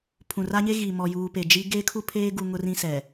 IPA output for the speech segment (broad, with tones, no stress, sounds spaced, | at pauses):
pʰ ũ˨ r a˦ ɲ e˦ ɣ i˨ m ɔ˨ j uː˨ p e˨ d͡ʒ i˦ ɡ eː˦ kʰ u˦ pʰ eː˦ ɡ u˨ ŋ ʊ˦ r ĩ˦ s ɛ˨